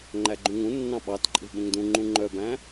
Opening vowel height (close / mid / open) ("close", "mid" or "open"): open